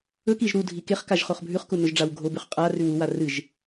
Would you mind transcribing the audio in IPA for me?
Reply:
ɵ k i ʒ ɾ u dʱ i k e χ k a ʒ χ o χ bʱ ʉ χ k u n ɵ ʒ ɖ͡ʐ a w ɡʱ o b ʉ χ qʼ a r ʉ w u w a r ɨ ʒ

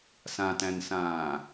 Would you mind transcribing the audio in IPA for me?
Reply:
s ã t æ̃ n s ãː

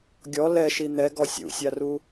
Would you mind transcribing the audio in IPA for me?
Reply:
ɡʲ ɔ l ɛ ʃ i n̪ ɛ ɡ ɔ sʲ ṵ sʲ a r u

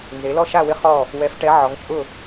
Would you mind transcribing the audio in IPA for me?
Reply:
n z e˩˧ l ɔ˦˨ ʃ a˦˨ w ɪ˦˨ χ ɔ˦˨ | w ɛ˩˧ f ʈ ɛ˩˧ ʕ ɔ˩˧ ŋ t͡ʃʼ ʊ˦˨

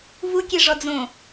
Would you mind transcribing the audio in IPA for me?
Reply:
v u kʲ e ʐ ɔ d͡z õ

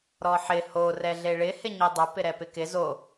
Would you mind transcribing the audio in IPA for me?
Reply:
ɾ ɔ ħ ɪ h o r ɛ ɮ e ɭ ɪ h ɪ ɲ i dˤ ʊ p ɪ ɾ ɛ p ɪ k ɪ z o

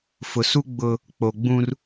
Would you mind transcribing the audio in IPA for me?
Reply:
f ʊ˨ s u˦ ɡ͡b ʊ˦ | k͡p o˨ ɡ͡b ũ˦ r

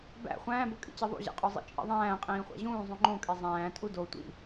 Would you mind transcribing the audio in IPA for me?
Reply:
b æ̰ χʷ æ̃ː b o kʼ ḭ t͡ɕ e ðˤ ṵ ʑ æ̰ qʼ o zˤ ḭ t͡ʃʼ ḭ ðˤ æ̃ː qʼ ĩː χʷ æ̰ ʑ ũː zˤ ũ ŋ͡ǃ õ kʼ e zˤ æ̃ː tʼ u d o tʷ ḭ

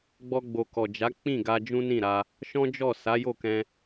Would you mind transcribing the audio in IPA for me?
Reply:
ɡ͡b ɔ˧ ɡ͡b o˨ k ɔ˨ d͡ʒ a˨˦ k͡p ĩ˦˨ ɡ a˧ d͡ʒ ũ˦ n ĩ˦˨ ɾ a˧ | ʃ ɔ̃˦ d͡ʒ ɔ˦˨ s a˨˦ j o˦˨ k ɛ̃˧

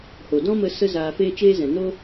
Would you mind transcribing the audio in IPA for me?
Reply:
h o˨ d ɔ̃˦ m ə˧ s ə˦ z aː˧ f eː˦ t͡ʃ eː˦ z ɛ̃˨ n o˦

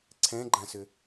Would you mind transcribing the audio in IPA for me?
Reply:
ǀʰ ɛ̃ ɡ͡ǃ ã s ʏ

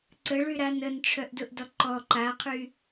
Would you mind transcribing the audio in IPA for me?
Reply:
ǀ ə ɭ y ɾ a n ə n ʈ͡ʂʰ œ ʔ d ʊ ʔ d ɔ ǃ ɔ ǃ a qʰ y

